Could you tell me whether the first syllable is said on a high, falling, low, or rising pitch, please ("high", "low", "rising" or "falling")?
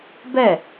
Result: falling